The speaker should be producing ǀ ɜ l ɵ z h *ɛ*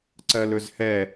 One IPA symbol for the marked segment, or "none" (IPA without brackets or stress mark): ɛ